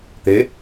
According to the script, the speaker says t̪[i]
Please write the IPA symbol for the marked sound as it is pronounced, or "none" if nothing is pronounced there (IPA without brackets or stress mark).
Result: e